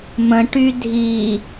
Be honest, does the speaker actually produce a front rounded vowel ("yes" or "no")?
yes